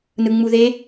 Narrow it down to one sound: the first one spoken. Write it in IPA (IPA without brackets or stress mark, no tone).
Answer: n